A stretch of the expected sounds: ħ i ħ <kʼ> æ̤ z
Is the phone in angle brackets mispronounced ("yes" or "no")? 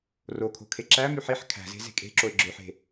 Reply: yes